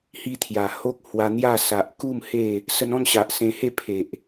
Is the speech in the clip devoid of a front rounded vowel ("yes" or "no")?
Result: yes